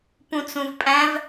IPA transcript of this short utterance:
pũt͡sũvpʼæ̃v

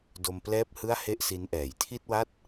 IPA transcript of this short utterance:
do˧mplɛː˥˩p̚hɯ˥˩a̯ he˥˩ʔsi˦˥nʔɛː˨˩j tʰi˥˩t̚wa˥˩t̚

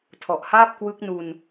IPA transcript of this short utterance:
tʰɔ˨˩ʔhaː˥˩p̚kwɯ˦˥k̚nu˧n

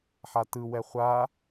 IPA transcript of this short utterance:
ħatɯwɛ χʷa

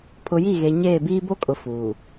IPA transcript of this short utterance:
pʰʊ˨ji˦˨ɣe˨ ɲeː˦˨biː˦ bo˦kʼʊ˨ fuː˨

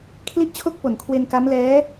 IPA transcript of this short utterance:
kʰli˥˩ʔt͡ɕʰo˥˩k̚po˨˩n kʰwe˧nka˦˥mlɛː˦˥

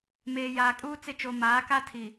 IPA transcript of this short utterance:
meː˨jaː˨kʼuː˦ t͡sɪ˦˨t͡ʃo˨ maː˨˦ka˦tʰi˨

